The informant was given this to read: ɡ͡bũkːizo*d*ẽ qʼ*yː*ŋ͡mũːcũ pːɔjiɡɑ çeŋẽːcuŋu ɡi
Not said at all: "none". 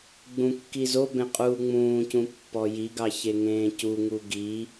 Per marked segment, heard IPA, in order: b, uː

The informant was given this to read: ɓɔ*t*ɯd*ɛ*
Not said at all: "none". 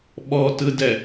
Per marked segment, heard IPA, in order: t, ɛ

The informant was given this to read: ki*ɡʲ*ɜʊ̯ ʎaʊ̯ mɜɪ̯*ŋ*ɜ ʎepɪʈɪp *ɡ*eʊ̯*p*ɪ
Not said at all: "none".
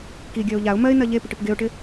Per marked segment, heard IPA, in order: ɡʲ, n, ɡ, ʈ

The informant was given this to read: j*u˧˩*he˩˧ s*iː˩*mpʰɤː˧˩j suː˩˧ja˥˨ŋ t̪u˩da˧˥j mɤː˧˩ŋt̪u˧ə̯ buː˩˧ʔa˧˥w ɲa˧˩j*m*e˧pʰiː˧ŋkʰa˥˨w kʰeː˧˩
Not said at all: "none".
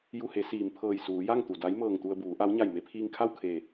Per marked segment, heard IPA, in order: u˧˩, iː˩, m

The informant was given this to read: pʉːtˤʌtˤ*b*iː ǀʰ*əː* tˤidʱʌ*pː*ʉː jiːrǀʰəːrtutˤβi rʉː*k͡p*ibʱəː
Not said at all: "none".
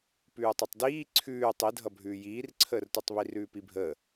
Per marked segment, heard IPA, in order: d, ʉː, bʱ, p

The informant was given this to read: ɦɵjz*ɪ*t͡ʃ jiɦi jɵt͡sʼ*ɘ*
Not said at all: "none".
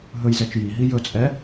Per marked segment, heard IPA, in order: ɛ, ɛ

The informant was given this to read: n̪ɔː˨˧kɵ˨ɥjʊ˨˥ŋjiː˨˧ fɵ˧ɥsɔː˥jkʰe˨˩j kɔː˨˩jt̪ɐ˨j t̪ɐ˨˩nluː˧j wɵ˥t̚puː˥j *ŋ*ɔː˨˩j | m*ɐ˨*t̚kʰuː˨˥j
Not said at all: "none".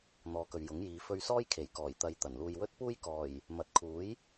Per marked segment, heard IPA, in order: k, ɐ˨

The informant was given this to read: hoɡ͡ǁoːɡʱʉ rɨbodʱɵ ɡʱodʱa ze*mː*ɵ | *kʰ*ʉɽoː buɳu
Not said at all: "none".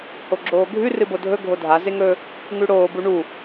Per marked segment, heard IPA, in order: ŋ, ŋ

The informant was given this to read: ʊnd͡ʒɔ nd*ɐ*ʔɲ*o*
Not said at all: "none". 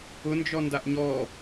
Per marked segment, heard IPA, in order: a, ɔ

